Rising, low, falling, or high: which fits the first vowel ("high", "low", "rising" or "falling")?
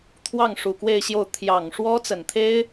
falling